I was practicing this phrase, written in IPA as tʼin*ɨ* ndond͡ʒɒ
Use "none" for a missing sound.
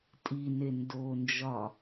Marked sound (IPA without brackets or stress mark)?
e